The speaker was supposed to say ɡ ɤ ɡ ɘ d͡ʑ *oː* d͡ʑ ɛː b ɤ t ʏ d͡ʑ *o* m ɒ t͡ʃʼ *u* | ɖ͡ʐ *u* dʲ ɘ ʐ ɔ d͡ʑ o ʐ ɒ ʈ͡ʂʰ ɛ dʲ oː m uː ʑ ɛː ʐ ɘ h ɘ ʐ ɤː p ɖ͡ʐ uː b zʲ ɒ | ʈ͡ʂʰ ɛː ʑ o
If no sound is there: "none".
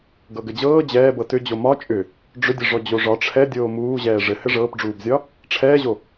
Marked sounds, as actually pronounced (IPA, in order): ɤː, o, ʏ, ʏ

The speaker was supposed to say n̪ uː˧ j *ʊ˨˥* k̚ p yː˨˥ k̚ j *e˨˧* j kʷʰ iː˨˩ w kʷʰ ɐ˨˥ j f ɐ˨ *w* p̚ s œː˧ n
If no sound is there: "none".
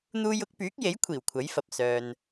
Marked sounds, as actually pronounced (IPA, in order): ʊ˨˥, e˨˥, none

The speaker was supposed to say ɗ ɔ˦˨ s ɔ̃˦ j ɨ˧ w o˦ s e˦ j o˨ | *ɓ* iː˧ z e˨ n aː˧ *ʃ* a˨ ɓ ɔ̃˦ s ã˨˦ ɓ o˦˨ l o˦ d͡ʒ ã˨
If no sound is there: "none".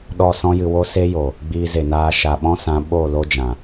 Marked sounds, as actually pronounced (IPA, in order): ɡ͡b, ʃ

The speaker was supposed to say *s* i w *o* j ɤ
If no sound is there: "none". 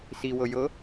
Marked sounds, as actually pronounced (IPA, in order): s, ɤ

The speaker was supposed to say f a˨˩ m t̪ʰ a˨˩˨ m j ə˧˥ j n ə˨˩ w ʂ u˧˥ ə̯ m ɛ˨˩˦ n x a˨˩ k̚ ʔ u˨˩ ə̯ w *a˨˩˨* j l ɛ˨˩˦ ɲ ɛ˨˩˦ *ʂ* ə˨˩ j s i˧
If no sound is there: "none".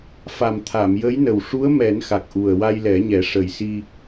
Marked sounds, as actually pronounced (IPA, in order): a˧, ʂ

